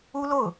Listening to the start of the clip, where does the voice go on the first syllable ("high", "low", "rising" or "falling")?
high